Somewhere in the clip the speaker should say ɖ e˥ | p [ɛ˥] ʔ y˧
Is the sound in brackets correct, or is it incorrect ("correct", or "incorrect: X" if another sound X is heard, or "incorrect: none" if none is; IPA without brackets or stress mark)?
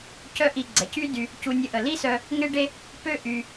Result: incorrect: ø˥